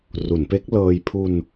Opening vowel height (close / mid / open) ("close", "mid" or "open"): close